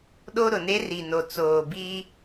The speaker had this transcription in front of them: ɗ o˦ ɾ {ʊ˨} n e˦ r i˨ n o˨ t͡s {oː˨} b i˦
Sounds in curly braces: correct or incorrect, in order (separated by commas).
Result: correct, correct